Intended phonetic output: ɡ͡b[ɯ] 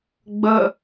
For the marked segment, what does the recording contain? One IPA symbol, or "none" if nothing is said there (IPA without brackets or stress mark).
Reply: ə